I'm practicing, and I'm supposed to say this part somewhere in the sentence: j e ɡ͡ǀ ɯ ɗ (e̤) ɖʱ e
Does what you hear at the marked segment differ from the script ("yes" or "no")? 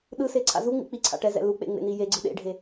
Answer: yes